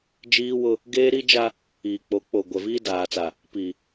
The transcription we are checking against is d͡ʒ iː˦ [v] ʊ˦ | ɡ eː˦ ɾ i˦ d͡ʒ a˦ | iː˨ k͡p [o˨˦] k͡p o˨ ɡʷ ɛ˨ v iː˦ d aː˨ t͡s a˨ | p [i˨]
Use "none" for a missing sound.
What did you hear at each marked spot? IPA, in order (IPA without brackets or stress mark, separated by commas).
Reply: w, o˨˦, i˨